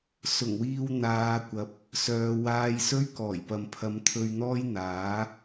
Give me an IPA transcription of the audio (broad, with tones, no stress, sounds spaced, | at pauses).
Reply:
s ʊ˨˩ ŋ w iː˧ w n̪ aː˨˧ kʷ ɐ˨˥ p̚ | s œː˨˧ w aː˧ j s ɵ˥ ɥ k ɔː˨˩ j p ɐ˨ m pʰ ɐ˨˧ m t̪ʰ ɵ˧ ɥ n̪ ɔː˥ j n̪ aː˨˥